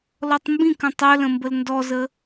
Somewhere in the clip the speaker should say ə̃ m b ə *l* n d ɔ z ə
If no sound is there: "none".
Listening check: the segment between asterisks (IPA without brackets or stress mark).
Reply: l